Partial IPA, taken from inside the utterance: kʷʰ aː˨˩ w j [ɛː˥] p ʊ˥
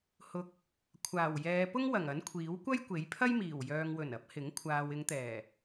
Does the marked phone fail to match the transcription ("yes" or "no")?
yes